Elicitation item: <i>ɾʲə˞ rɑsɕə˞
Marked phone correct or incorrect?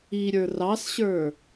correct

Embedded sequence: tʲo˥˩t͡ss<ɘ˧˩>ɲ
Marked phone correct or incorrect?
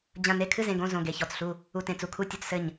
correct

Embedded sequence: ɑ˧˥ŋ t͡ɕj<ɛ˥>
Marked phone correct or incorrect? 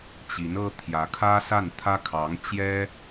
correct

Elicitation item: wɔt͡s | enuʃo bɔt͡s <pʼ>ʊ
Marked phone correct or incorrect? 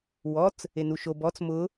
incorrect: m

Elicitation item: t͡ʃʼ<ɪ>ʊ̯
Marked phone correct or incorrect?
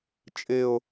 correct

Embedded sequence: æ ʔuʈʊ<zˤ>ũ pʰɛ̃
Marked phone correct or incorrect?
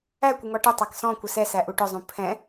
correct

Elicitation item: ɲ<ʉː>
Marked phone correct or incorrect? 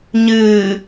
incorrect: ɨː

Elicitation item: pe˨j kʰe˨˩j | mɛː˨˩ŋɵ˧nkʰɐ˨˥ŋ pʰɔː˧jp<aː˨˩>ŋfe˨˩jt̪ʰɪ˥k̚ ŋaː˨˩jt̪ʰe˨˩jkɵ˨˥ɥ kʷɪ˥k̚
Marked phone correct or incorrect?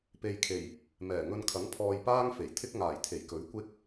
incorrect: aː˥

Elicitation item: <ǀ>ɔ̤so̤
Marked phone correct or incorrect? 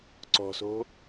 correct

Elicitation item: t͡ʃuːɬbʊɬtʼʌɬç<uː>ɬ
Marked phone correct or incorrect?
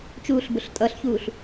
correct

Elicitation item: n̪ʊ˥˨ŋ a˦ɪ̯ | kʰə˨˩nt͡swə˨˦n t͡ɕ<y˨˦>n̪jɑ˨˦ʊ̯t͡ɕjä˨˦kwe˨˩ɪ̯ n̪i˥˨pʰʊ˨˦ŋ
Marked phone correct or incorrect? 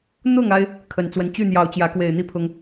incorrect: y˥˨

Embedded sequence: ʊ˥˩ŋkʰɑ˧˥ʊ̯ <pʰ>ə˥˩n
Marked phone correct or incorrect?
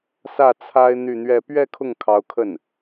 incorrect: kʰ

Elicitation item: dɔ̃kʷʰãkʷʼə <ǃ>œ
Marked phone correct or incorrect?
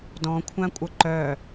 correct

